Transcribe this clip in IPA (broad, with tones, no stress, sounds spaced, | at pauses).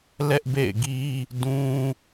l ɛ˦ ʔ b ḛ˦˨ ɪ̯ ɡ i˦ | d ũ˦